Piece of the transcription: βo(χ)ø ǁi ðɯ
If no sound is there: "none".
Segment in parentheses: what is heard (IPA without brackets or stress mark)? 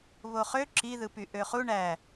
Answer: χ